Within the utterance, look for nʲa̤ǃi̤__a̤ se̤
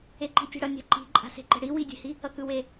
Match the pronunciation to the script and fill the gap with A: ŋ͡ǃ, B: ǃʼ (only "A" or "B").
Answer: B